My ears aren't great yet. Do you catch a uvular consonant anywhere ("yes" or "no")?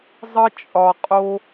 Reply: yes